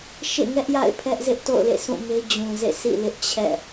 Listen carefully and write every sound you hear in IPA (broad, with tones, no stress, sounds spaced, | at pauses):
ʃ ḛ˦˨ ŋ ɛ˦ ʔ j a̰˦˨ ɪ̯ pʰ ɛ˦ ʔ z ɪ˦ ʔ t o̰˦˨ ʊ̯ l ḛ˦˨ s ũ˦˨ m e˦ d͡ʑ ũ˨ z ḛ˦˨ s ḭ˦˨ l ɪ˦ ʔ t͡ɕʰ ɛ̰˦˨